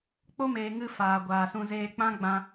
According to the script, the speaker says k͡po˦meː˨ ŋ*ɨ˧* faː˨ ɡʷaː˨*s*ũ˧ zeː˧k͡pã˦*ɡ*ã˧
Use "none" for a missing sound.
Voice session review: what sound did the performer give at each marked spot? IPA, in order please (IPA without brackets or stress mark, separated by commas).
ɨ˦, s, ɡ͡b